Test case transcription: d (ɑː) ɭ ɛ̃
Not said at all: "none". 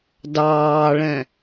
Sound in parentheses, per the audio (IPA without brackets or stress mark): ɑː